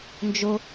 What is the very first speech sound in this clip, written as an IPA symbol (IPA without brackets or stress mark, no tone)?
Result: n